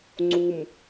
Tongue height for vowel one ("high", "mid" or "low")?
high